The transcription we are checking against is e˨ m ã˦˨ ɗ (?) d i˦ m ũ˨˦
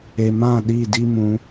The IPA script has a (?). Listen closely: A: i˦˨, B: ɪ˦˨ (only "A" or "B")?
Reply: A